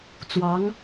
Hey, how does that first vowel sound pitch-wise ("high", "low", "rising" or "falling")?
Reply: rising